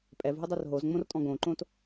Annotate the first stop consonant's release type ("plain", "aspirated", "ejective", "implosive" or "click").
ejective